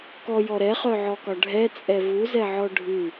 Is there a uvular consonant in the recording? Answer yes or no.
yes